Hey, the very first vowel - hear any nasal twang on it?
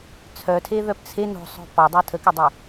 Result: no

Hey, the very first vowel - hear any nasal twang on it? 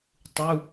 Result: no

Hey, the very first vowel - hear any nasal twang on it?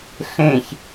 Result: yes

